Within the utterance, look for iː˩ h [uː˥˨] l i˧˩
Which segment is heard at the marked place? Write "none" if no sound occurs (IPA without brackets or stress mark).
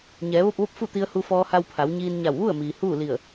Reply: uː˥˨